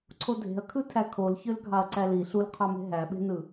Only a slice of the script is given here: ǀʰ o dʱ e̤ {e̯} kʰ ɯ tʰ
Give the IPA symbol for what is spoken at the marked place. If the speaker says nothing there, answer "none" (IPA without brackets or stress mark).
ɐ̯